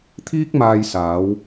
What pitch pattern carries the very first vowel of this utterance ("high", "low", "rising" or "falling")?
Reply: high